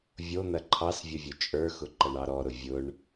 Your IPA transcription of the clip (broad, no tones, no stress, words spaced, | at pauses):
vʲo n̪ɐǃʰɑsvʲʊ vʲʊt͡ʃʼə˞xʊ ǃɐɳɑɾɔɾʊ vʲʊɳ